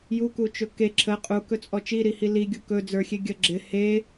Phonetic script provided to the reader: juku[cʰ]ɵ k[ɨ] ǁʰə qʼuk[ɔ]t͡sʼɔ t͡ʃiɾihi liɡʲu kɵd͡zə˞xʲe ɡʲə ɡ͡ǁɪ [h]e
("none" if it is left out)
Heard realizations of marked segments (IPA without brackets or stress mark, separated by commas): t͡ʃ, e, ɵ, h